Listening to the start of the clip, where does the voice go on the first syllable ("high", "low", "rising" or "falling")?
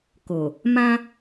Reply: low